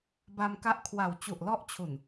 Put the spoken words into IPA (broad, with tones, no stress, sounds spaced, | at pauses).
b a˧ m k a˦˥ ʔ kʰ w a˨˩ w t͡ɕ u˨˩ ʔ l ɔ˦˥ ʔ t͡ɕʰ u˨˩ n